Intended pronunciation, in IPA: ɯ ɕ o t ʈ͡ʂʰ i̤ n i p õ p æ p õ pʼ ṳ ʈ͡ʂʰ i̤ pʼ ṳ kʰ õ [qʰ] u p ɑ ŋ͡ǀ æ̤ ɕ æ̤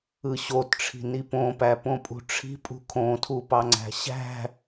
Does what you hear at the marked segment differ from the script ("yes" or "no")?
yes